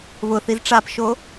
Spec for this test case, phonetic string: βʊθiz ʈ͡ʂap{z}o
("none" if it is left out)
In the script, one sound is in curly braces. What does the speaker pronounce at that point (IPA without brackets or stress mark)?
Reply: ʃ